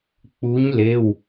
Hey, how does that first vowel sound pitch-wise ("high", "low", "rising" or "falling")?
rising